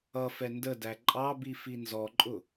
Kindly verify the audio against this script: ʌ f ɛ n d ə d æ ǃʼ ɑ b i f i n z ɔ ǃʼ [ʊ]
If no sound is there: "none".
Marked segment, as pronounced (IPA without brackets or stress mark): ʊ